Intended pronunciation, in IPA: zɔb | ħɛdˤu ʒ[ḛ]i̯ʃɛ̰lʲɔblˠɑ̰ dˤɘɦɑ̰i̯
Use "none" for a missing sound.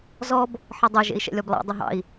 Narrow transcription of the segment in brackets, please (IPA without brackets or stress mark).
ḛ